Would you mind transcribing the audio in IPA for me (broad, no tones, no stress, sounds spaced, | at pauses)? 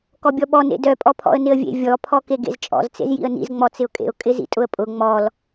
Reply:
k ɔ bʲ ɔ ɓ ɔ n ḛ d œ pʼ ɔ pʰ ɔ̰ ə̯ n ɪ ə̯ vʲ ḛ vʲ ɔ pʰ ɔ k e ɡ ḛ z t͡ʃʼ ɔ̰ z t͡s ḛ z j ḭ ə̯ n ḭ z ŋ͡m ɔ t͡s ɪ ʊ̯ kʼ ḛ ʊ̯ kʼ ɪ z ḭ tʼ ʊ ə̯ pʼ ʊ ŋ͡m ɔ l